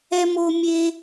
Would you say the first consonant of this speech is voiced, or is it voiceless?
voiced